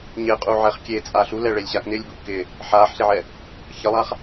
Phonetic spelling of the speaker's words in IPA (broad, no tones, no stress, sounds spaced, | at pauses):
ɲ ɪː qʼ u ʕ ɛ χ kʲ e t͡sʼ a ɬ u l ɛ ɭ e lʲ ɕ a k n ɪː lʲ b u ʔ k ɪ | ħ aː ħ ɬ e ʕ ɛ | ç ə lˠ a χ